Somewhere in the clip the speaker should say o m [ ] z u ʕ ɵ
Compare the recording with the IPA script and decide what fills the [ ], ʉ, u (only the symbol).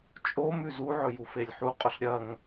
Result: ʉ